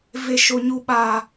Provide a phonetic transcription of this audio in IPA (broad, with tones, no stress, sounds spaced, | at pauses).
v e˨ ʃ o˨ ɲ u˨ ɓ a˨